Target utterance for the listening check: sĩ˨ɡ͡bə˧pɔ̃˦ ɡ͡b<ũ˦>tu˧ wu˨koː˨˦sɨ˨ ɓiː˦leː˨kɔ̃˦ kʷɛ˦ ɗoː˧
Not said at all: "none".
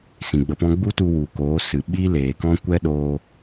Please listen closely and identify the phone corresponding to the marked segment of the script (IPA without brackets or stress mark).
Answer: u˦